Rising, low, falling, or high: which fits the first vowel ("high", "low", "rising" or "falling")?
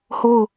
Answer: falling